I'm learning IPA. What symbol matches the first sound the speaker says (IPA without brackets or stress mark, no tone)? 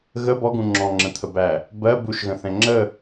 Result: ɣ